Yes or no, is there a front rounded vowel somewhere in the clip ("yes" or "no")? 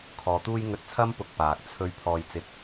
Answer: no